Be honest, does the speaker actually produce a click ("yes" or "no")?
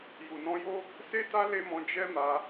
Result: no